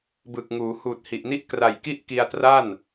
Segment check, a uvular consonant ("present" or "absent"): absent